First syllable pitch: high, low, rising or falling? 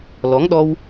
rising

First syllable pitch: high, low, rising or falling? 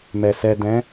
low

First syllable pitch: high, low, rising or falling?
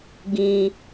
high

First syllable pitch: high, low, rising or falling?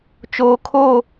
low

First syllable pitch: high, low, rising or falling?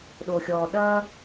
low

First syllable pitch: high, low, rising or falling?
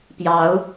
rising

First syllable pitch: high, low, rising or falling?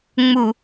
low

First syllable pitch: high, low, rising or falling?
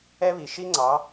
high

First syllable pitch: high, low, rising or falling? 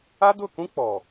high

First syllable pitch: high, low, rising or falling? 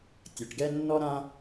low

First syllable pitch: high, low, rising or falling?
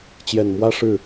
low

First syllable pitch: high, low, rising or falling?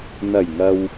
low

